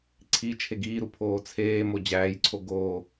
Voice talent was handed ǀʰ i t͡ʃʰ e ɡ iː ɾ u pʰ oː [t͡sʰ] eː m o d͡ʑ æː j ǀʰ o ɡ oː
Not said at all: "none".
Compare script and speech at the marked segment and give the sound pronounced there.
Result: t͡sʰ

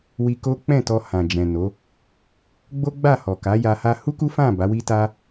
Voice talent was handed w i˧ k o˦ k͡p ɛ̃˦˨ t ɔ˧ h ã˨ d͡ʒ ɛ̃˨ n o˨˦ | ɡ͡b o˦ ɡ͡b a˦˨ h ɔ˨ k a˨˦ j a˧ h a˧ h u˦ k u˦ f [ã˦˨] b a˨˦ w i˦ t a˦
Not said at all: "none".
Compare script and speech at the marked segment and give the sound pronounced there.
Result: ã˦˨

